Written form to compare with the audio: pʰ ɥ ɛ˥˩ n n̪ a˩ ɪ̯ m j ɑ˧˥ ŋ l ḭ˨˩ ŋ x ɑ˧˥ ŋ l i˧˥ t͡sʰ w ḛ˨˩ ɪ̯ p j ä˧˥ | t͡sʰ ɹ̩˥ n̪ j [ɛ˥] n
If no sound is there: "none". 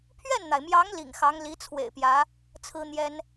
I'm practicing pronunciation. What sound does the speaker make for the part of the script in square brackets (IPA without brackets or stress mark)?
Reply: ɛ˥